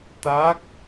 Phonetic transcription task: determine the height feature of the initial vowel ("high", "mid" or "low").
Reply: low